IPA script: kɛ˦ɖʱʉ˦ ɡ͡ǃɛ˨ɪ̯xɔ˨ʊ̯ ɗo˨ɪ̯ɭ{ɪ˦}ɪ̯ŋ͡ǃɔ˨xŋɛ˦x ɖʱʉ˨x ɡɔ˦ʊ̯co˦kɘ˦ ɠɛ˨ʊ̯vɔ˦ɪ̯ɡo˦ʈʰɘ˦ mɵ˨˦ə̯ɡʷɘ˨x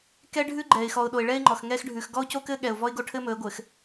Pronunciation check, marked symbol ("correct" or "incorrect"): incorrect